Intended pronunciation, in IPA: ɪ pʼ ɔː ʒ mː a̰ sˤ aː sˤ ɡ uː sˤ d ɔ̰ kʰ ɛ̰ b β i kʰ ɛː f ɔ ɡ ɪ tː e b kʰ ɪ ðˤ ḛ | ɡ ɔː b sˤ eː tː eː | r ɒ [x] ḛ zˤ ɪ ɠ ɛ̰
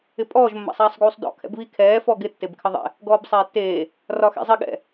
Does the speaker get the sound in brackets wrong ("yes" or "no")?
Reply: no